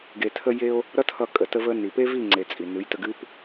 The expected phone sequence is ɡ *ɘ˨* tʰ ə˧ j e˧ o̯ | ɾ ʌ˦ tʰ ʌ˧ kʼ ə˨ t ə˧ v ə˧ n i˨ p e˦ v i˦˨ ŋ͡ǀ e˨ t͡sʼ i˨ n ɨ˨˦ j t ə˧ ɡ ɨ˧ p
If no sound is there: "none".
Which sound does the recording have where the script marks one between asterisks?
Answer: e˨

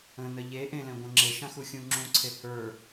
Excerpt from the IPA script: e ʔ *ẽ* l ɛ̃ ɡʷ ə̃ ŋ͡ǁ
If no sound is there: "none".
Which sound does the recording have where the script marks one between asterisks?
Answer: ẽ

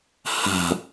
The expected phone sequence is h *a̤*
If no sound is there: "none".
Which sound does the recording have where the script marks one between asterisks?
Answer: a̤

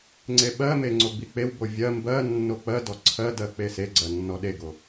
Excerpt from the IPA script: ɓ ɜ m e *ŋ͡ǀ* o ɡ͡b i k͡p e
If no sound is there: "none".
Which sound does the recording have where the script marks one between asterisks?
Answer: ŋ͡ǀ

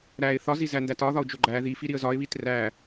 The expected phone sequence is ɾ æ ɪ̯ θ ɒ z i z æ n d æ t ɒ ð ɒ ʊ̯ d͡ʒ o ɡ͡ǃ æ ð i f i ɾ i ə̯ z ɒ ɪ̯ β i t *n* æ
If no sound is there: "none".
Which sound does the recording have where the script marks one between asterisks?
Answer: r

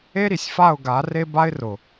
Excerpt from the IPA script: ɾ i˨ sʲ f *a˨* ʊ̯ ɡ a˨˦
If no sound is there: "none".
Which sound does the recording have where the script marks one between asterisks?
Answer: a˦˨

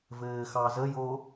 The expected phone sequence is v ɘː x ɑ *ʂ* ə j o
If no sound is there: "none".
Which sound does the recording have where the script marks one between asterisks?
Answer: z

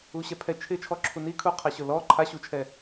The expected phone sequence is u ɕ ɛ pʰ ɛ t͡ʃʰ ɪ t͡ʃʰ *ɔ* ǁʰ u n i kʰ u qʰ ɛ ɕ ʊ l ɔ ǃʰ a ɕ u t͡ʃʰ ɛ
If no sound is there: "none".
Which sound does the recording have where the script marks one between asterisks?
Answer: ɔ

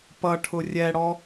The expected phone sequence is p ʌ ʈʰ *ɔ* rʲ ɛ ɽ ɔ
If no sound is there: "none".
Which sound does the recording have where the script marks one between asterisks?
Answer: ʊ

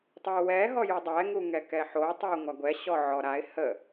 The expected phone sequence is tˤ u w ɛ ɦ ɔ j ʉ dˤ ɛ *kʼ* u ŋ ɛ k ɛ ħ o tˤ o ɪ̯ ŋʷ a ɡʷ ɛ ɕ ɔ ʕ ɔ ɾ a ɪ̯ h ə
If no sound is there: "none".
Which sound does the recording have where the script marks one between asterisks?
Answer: ŋ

